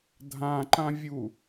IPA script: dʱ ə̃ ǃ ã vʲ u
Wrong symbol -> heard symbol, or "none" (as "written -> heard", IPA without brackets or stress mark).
ə̃ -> ã